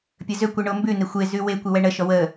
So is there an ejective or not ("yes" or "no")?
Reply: no